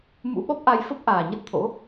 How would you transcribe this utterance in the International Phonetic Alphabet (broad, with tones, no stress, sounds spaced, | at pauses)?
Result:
m ṵ˧˥ ɓ ɔ˦˥ p̚ ʔ a˧ j f ə˦˥ p̚ ʔ aː˨˩ ɲ ə˦˥ t̚ t̪ʰ o̰˧˥